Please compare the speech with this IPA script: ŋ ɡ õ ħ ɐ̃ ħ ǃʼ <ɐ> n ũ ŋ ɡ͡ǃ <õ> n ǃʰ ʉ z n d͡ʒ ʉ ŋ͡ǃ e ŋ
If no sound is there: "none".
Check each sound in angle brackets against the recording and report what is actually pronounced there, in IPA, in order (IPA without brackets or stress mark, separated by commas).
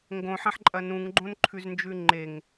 ɐ, õ